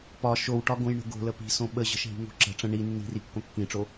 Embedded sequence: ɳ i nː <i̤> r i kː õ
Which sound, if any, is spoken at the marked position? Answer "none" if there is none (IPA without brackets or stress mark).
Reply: i̤